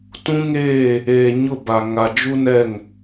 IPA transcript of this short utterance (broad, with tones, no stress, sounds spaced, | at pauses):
t ũ˦ ŋ eː˦˨ | eː˨ ɲ ʊ˦˨ b a˨ ŋ a˨ d͡ʒ u˦ n ɛ˦˨ ŋ